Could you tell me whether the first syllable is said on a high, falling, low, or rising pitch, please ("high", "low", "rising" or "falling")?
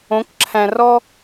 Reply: rising